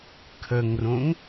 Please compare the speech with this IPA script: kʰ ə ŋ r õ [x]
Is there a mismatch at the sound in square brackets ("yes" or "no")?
yes